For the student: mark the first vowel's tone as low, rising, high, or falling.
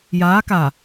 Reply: rising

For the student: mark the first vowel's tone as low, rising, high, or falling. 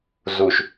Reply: low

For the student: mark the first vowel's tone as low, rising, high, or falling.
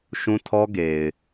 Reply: high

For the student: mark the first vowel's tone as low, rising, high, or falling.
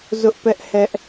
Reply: high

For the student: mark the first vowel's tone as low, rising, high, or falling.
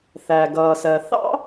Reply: low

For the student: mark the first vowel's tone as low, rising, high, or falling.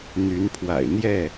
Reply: rising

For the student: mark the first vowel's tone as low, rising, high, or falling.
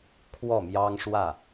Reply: falling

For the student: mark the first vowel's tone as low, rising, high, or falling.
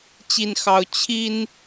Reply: high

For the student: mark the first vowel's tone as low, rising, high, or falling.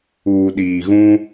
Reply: low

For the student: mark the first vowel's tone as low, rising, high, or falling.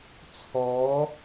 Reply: rising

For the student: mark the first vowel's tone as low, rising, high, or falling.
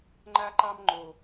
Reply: high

